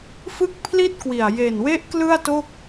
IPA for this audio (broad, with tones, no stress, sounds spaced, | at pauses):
f ɯ˥˩ k̚ pʰ l i˥˩ t̚ k w i˨˩ a̯ j e˨˩ n w e˦˥ ʔ k l ɯ˥˩ a̯ t o˥˩ k̚